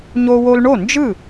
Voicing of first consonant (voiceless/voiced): voiced